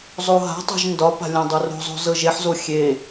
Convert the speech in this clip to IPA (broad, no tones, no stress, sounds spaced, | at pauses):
zˤ o ɦ a̤ tˤ o̤ ʒ n d ɒ p a̤ lʲ ã dˤ o r o̤ zˤ o̤ z ɤ ʒ e ħ z o xʲ e